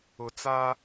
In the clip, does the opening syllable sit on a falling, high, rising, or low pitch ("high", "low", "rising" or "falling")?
low